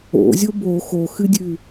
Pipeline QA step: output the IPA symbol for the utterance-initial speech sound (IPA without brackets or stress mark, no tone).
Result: o̰